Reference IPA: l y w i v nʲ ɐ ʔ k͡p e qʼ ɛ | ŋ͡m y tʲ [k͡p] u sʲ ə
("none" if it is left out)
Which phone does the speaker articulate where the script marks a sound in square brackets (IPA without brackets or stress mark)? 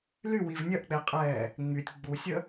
ɡ͡b